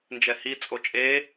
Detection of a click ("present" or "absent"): absent